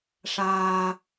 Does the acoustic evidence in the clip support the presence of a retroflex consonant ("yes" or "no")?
yes